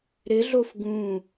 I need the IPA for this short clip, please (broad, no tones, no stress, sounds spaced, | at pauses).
ɾ ɪ ɮ o f ɡ ũ